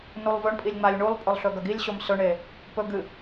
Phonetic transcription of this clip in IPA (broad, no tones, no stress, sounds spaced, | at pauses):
n u lˠ v ɵ ɳ pʼ i lʲ ŋ͡m a lʲ ɳ u lˠ pʼ ɵ lˠ ɬ ɵ ɡ ɐ ɡ i lʲ ɕ o m s ɵ ɳ e | p ɵ ɡ ɨ